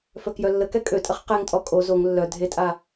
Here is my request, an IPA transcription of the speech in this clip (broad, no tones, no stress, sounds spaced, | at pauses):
f œ k j œ lː ə k ɛ kʼ ø tʼ ə χ q ɛ ŋ tʼ ɔ kʼ o z o ŋ lː œ dʱ e tʼ a